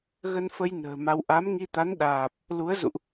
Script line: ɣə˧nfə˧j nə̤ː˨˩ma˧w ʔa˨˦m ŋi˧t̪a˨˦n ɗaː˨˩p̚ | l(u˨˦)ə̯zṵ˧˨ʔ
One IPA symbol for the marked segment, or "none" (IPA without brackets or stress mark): u˨˦